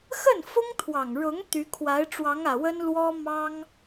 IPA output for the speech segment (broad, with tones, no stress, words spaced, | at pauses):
xə˥˩nfʊ˥ŋt̪ʰwɑ˨˩ŋɻʊ˧˥ŋ t̪y˧˥kʰwa˧˥ɪ̯ ʈ͡ʂwɑ˧˥ŋä˨˩ wə˥n lwɔ˥ mɑ˥ŋ